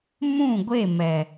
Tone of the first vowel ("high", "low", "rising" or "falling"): falling